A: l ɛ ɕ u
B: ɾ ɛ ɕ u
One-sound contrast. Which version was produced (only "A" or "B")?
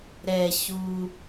B